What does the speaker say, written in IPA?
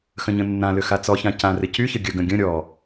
xə̃ɲə̃nːãlʏ xat͡sɔçã cãrɪ cyçə ɡʲəɡə̃ ɡʲə̃ ɾʲɔ

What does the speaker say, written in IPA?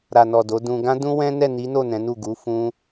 ɾa˨nɔ˨ do˨˦dũ˧ ɡã˦dũ˦wɛ̃˦ nɛ˦˨ni˨˦no˦˨ nɛ̃˨˦nu˦˨ ɡu˨˦ fũ˦

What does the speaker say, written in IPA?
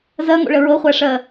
zɜŋo̰ɭə ɹɤχʷæʂɜ

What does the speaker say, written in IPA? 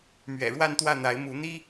mɥɛ̰˨˩ɻwa˥˧nt̪wä˥˩n̪a˧˥ɪ̯ mu˧˥n̪i˥

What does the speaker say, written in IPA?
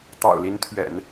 t̪ɑ̰˨˩ʊ̯li˧˥nt̪ʰɥɛ̰˨˩˦n

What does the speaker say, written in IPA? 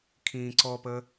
kʰĩːǀɔpəː

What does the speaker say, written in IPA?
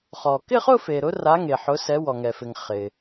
χɔ˩ kɪ˥˧χʊ˥˧fe˩ɾʊ˨˦ ra˨˦ŋe˩ ħʊ˨˦sɛ˨˦ wɔ˩ŋɛ˩fɪ˩ŋ χɪ˩

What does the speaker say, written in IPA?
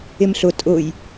ɪmɬʊ tʼʊj

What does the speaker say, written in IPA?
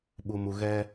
ɓu˨mu˨ɣɛ˦

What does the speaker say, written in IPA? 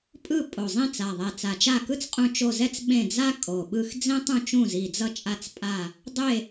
pʼɯ˦˨ pʼo˨˩zˤĩ˦˨t͡sa˨˩ðˤɛ˨˩ t͡sa˨˩t͡ʃa˦˨ kɯ˥t͡sqʼũ˦˨ t͡ʃo˦˨zɛ˥t͡s ɓẽ˦˨d͡za˥ kʼo˨˩ɓɯ˦˨x d͡zẽ˥ tˤũ˦˨t͡ʃũ˦˨zi˨˩d͡zʌ˦˨ t͡ʃʼa˦˨t͡spʼa˦˨ | dˤe˦˨

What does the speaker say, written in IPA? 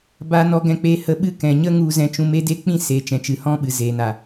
ba˧ nɔ˧ɡɛ̃˧k͡peː˧ hə˧ɓɨ˦ kɛ̃˨ ɲə˦ ŋu˧zɛ̃˧ t͡ʃũ˧me˦de˦k͡pĩ˦ seː˨t͡ʃɛ̃˨t͡ʃɨ˨ hɔ̃˦ɓɨ˨ zeː˨na˨

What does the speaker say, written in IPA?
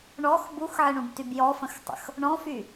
ɳɔx buxʕɪɳũbtyb jɔfə̃xtˤə̰x | ɳɔ̃fy

